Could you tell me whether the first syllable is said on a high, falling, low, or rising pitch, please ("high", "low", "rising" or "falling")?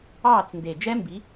falling